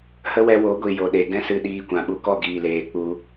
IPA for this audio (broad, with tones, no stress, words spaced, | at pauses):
hə˦wɛ˧wo˨˦ɡʷi˨ jo˨ɗe˨ ɡɛ̃˦sɨ˧ɗiː˧kʷã˨ ɓu˨kɔ˦˨ ɡiː˨leː˨k͡pu˧